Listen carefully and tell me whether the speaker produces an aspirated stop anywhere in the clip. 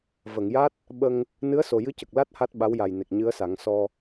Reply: no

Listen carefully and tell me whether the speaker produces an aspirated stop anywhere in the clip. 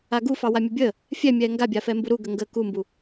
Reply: no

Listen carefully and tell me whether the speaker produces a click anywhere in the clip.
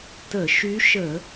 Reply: no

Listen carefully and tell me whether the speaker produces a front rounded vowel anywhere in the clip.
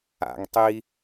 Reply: no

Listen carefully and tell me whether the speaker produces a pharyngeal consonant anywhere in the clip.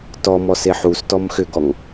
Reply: yes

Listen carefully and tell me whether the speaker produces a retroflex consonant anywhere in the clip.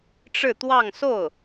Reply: yes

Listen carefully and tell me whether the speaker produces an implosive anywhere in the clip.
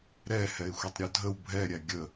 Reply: no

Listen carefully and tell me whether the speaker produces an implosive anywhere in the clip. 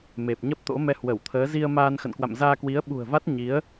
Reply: yes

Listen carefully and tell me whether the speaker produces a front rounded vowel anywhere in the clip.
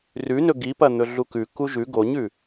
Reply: no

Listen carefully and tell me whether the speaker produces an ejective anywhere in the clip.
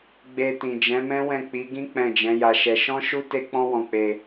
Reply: no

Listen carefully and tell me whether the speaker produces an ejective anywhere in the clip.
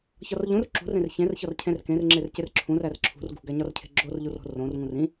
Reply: no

